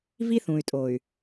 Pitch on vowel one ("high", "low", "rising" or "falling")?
high